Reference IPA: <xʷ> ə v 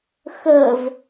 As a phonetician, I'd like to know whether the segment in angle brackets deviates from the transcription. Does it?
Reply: yes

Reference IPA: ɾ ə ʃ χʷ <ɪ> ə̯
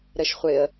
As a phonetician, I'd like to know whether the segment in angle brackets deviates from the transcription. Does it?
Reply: no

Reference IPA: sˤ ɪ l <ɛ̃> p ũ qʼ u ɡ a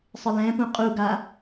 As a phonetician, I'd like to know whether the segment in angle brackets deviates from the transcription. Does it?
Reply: no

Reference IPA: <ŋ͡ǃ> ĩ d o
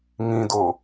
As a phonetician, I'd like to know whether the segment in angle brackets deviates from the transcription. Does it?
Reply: yes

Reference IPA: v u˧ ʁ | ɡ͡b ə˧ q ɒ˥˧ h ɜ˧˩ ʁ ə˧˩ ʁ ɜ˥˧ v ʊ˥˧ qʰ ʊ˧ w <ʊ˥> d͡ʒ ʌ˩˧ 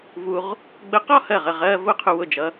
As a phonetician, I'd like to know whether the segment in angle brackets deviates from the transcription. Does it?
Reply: yes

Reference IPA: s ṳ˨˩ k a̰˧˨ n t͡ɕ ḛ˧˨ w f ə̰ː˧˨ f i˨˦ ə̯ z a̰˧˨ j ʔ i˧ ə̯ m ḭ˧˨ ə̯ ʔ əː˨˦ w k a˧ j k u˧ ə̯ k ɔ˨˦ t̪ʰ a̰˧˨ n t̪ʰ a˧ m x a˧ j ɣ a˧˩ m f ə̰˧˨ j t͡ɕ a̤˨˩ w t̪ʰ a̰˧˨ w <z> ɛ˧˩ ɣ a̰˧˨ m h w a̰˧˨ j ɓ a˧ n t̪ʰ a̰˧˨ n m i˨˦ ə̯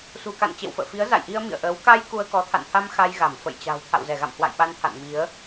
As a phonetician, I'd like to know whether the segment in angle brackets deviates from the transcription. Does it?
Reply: no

